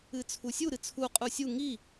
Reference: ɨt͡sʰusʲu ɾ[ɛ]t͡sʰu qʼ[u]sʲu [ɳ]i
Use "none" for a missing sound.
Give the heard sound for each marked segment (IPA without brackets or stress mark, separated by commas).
ɨ, u, ŋ